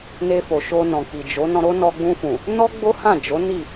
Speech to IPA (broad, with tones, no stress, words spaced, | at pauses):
ne˧fo˨ʃo˧ nɔ̃˨k͡pi˨d͡ʒo˨˦ nɔ̃˧ ɾo˦nɔ˧ɡ͡bũ˧fũ˨ | nɔ˦ ɡ͡bo˦hã˦˨d͡ʒo˨˦ ni˦˨